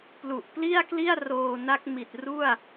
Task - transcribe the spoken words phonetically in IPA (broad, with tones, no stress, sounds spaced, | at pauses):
p l u˨˩ ʔ p l i˥˩ a̯ k l i˥˩ a̯ r oː˧ n a˦˥ k̚ m i˨˩ t̚ r u˥˩ a̯